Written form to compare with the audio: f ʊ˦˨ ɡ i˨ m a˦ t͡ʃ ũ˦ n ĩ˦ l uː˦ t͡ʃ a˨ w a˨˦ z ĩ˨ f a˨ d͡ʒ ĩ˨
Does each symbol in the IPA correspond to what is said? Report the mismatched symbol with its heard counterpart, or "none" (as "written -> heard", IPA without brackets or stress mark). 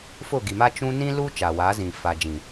none